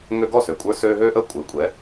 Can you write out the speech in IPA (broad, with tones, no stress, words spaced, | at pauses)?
ŋø˧ɡɔ˥˩sø˩kʷʼə˞˧ søː˧ ɦøː˥ʔəː˥ kʷʼɘː˩˥kʷʼɛ˩˥